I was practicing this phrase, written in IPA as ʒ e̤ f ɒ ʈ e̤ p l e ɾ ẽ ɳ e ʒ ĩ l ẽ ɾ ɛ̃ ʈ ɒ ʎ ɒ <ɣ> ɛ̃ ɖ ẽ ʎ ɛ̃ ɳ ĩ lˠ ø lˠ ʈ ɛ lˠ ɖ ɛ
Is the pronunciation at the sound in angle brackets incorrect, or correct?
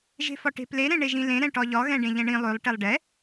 correct